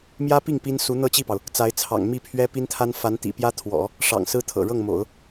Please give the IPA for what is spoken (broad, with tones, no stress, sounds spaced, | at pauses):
m j ä˥ p i˥˩ ŋ p i˥ n s u˧˥ n̪ ɤ˥˧ t͡ɕ i˥˩ p ɑ˩ ʊ̯ | t͡s a˧˥ ɪ̯ t͡sʰ ɑ̰˨˩ ŋ m i˥˩ pʰ ɥ ɛ˥ p i˥ n t̪ʰ a˥ n f a˧˥ n t̪ ḭ˨˩ p j ä˥ t̪ʰ w ɔ̰˨˩˦ | ʂ ɑ̰˨˩ ŋ s ɹ̩˥ t̪ʰ ɤ̰˨˩ ɻ ɤ˥˩ ŋ m o̰˨˩˦ ʊ̯